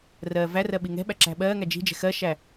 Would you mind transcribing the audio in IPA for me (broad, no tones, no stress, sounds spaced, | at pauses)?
r ɜː v æ r ɜ ɓ i ŋ ɛ̤ ɓ æ ǁ æ̤ ɓ ɜː ŋ æ d͡ʒ i̤ d͡ʒ ɛ̤ x ɜ ʃ æ